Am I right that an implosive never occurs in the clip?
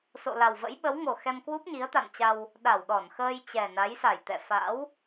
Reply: no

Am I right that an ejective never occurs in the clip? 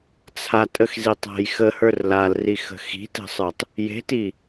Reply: no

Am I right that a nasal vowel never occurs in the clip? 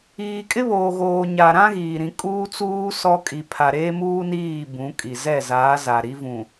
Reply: no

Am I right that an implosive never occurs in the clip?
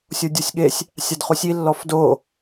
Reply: no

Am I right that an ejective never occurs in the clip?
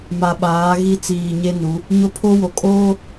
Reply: no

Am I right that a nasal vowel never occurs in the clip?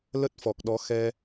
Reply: yes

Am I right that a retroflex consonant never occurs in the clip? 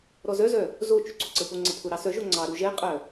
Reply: yes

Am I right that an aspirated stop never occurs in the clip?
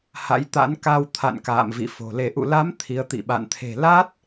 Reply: no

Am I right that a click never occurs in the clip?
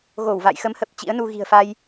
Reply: yes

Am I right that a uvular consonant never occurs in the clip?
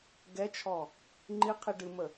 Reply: no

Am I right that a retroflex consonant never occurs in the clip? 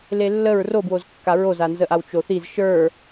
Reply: yes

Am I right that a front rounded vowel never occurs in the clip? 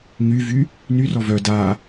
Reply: no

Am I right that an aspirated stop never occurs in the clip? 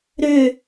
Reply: yes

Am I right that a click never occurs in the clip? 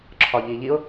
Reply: no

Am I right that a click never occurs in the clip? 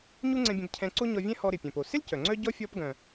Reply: no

